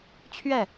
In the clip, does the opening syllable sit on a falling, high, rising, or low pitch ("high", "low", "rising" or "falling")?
falling